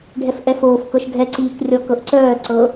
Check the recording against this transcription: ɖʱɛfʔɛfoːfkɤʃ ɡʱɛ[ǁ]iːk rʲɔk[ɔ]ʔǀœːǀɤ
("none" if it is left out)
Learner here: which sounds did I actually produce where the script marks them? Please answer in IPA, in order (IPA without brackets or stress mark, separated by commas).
ǀ, ɤ